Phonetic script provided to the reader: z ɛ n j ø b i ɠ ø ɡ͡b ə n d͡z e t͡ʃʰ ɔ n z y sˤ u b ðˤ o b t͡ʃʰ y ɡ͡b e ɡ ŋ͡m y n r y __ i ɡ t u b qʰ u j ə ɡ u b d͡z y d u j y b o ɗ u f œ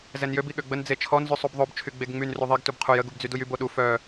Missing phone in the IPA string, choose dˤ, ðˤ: ðˤ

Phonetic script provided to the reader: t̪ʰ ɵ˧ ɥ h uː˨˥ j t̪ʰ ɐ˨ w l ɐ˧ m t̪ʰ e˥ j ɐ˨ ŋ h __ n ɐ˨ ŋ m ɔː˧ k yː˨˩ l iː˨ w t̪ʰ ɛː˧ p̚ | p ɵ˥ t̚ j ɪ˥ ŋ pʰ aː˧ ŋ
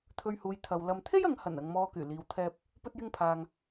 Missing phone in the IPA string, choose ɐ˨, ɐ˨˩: ɐ˨˩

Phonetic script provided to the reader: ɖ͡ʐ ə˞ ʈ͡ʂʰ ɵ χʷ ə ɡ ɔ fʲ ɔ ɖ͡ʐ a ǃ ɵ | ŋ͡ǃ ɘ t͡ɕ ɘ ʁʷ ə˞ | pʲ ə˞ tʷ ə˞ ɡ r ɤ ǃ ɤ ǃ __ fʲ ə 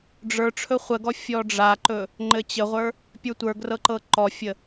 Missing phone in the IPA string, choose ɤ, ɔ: ɔ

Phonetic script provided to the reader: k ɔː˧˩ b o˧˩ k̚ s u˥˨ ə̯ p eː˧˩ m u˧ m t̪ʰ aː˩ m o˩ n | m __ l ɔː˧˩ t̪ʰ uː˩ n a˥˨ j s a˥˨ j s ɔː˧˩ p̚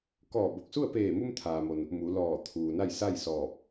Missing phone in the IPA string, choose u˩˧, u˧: u˩˧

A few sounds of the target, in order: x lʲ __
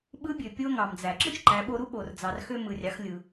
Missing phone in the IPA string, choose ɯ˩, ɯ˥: ɯ˩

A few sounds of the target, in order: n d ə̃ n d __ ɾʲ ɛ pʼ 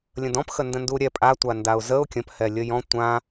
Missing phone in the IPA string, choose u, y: u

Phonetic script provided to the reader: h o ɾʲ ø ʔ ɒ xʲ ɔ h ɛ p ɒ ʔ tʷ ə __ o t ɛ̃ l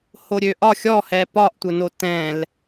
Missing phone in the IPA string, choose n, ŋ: n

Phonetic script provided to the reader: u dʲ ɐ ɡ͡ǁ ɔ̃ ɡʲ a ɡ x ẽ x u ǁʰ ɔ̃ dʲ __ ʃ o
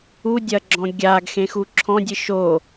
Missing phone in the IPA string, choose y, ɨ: ɨ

